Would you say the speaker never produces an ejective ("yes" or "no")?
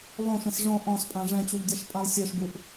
no